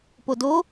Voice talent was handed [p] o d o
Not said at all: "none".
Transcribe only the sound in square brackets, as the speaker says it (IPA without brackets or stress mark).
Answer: p